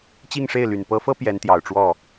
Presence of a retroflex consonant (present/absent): present